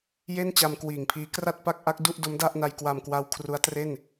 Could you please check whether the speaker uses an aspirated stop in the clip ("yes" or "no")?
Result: yes